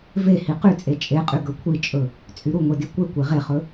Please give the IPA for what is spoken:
v e h i q y t͡sʼ e t͡ʃʼ e qʼ y ɡ ɵ kʷʰ i t͡ʃʼ ɵ | t͡sʼ y ɾ u ŋʷ e d i kʷ e kʷ e ʁ e χ ɵ

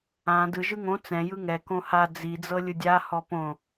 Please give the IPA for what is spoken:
ã d ɯ ʒ ɯ ŋ õ t͡s ɛ̃ j ɯ ŋ ɛ k õ h a d͡z i d͡z ɤ lʲ ɯ dʲ a h ɔ p õ

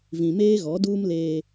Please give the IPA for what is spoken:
v ĩ˨ m eː˦ ɣ ɔ˨˦ d uː˦ m l eː˦

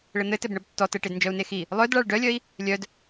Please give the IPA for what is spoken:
ɭ ɘ n̪ ɘ t ɘ b ɳ ə b tː ɔ t ə ʈ e d n d͡ʒ œ u̯ n e x i | lˠ œ d ɭ a ɭ ɖ œ lʲ œ i̯ | lʲ œ d

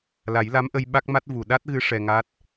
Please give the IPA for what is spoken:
l a˨˩˦ j l a˧˥ m ʔ ə˧ j ɓ a˦˥ k̚ m a˦˥ t̚ v u˨˩ ɗ a˦˥ t̚ ɣ ɨ˧˥ ʂ ɛ˧ ŋ a˦˥ t̚

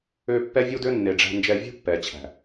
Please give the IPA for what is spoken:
ø˧ pː ɛ˦ vʲ u˦ d ø˦ nː e˨ ɖ͡ʐ æ̤˧ n d͡ʒ ɛ˧ vʲ ṳ˦ pː ɛ˨ t͡ɕʰ æ̤˨

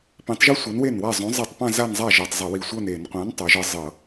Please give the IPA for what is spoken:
p ĩ˨˥ tˤ ʒ o˥ sʷ ɤ˨˥ n w e˥˩ n w a˥˩ zˤ õ˨˥ zˤ i˧˩˧ tˤ p ã˥˧ z a˥˧ n zˤ a˥˩ ʒ ɤ˧˩ tˤ zˤ ə˧˩˧ w i˧˩ sʷ ɤ˥˧ n e˧˩˧ n qʷ ã˨˥ n tˤ o˨˥ ʒ ɤ˥ zˤ ɤ˧˩˧

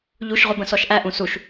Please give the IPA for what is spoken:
ʎ u ʃ ʁʷ ə b ə̃ s ɔ ʃ ʔ æ ʔ ũ s u ʃ

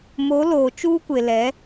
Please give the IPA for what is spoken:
m o˨˦ l oː˨ t͡ʃ uː˦ kʷ e˨ l ɛ˨˦

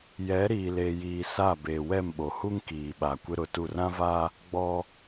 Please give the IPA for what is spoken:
j ɛ˨˦ ɾ iː˨ l eː˨ j iː˨ s a˦˨ b eː˨ w ɛ˦˨ m ɓ o˨ h u˦ ŋ k iː˨ ɓ a˨ kʷ ɪ˦ ɾ ʊ˨ t u˦˨ r ã˦ v a˦ | ɡ͡b ɔ˦

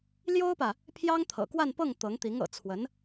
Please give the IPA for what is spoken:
l j o˥ ʊ̯ p ä˨ | pʰ j ɑ˥ ŋ t̪ʰ ɤ̰˨˩ k w a˥˧ n p ɤ˥˩ ŋ t̪ ɤ˧˥ ŋ t̪ i˧˥ ŋ ɤ̰˨˩ t͡sʰ w ə˧˥ n

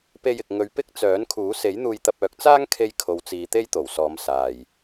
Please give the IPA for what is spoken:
p e˧ j ɪ˨ k̚ ŋ ɵ˨˧ ɥ p ɪ˥ k̚ t͡s œː˨˥ n kʰ uː˨˥ s e˨˥ j n̪ uː˧ j t̪ ɐ˧ p̚ œː˨˥ k̚ t͡s aː˥ ŋ kʰ e˧ j kʰ o˨˧ w t͡s iː˨˧ t̪ e˥ j t̪ o˨˩ w s ɔː˨˧ m s aː˨ j

